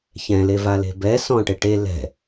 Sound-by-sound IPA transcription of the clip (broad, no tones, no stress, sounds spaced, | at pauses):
ç ɛ̃ l e v a l e̤ b ɛ s ɔ̃ ʈ e ʈ e l ɛ̤